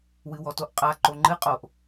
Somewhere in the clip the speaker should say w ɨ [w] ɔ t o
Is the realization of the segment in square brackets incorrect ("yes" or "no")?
no